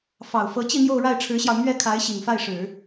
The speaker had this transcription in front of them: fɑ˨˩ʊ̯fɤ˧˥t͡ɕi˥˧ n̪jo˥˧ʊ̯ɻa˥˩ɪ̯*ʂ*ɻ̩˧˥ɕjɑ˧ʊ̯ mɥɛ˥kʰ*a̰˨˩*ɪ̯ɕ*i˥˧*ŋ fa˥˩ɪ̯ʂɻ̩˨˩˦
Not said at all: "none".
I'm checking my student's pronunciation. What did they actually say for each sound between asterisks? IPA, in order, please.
ʈ͡ʂʰ, a˧˥, i˨˩

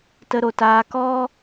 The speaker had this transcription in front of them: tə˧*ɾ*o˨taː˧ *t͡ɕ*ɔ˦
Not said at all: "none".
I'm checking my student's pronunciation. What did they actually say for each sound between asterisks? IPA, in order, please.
ɾ, k

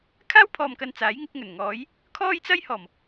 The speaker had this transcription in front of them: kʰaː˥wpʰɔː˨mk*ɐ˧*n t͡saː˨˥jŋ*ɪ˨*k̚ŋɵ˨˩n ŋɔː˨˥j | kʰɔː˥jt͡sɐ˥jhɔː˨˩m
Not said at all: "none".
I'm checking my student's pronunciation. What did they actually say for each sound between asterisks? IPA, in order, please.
ɐ˨, ɪ˨˥

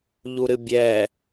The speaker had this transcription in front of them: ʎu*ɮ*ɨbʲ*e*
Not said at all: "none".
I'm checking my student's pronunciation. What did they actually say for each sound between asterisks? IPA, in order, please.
ɾ, ɛ

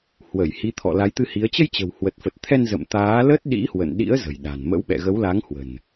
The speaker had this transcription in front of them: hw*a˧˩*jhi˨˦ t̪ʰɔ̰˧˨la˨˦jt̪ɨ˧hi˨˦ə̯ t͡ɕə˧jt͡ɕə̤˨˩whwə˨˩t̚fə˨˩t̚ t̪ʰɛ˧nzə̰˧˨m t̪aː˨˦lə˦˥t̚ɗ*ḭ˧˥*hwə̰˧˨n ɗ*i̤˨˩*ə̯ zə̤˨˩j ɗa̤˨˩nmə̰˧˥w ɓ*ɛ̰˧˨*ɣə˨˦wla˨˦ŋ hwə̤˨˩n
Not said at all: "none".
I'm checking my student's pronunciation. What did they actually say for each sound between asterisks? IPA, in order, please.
ə˧˩, ḭ˧˥, ḭ˧˥, ɛ̰˧˨

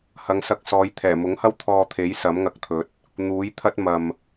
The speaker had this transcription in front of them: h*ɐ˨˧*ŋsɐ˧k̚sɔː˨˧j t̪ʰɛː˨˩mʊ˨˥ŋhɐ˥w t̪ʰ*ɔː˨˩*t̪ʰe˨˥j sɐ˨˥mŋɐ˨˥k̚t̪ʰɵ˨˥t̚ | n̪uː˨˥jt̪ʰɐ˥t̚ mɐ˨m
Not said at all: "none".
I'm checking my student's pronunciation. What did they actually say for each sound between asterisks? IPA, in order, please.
ɐ˨˧, ɔː˧

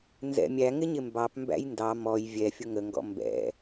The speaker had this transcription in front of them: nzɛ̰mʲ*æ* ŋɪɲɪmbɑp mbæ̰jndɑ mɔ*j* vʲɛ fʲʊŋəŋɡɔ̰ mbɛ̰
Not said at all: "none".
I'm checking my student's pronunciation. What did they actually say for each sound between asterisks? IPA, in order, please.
æ, j

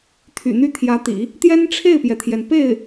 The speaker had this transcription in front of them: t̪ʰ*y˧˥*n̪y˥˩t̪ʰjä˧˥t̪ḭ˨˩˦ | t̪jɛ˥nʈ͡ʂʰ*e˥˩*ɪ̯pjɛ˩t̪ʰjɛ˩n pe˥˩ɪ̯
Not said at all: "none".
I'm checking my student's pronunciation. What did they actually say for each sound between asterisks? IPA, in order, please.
y̰˨˩, e˥˩

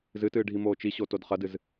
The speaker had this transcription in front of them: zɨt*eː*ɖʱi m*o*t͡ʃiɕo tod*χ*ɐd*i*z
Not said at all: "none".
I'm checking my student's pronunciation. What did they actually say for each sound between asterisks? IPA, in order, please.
ɨː, oː, χ, ɨ

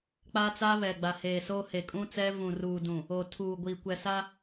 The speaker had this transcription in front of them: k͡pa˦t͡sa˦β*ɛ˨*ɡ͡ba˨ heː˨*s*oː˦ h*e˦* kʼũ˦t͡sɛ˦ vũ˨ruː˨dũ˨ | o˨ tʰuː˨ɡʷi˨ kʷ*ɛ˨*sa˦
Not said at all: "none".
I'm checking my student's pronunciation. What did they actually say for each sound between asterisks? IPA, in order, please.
ɛ˨, s, e˨, ɛ˨

